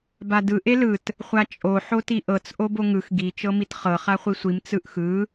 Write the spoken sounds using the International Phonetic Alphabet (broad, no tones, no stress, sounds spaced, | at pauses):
b a d ɯ ʔ e l ɯ t | χʷ a t͡ʃʼ o ħ o t i ʔ ɤ t͡s ʔ o b o ŋ ɯ x ɡ i t͡ʃ ɤ m i t χ ɤ χ a χʷ i sʷ i m t͡s ɯ ʔ x ɯ